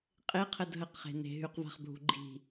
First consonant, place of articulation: uvular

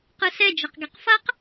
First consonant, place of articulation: uvular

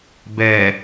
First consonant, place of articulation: labial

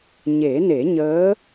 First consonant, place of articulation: palatal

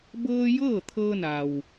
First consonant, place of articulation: labial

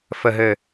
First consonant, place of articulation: labial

